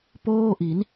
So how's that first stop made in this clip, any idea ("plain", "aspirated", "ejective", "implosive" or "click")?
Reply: plain